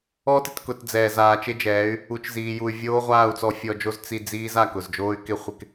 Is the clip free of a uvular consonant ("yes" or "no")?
no